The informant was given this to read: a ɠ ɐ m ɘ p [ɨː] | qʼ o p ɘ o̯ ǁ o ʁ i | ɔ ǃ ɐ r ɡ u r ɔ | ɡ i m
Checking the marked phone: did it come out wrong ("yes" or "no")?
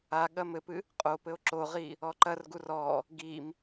yes